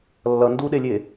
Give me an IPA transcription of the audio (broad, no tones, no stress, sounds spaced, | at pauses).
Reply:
lː ʌ n d u ɗ e lʲ e